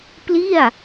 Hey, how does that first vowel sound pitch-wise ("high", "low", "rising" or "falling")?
falling